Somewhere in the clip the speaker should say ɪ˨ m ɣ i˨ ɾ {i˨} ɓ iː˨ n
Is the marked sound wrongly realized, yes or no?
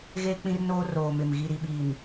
no